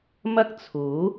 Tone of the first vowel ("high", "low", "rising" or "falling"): high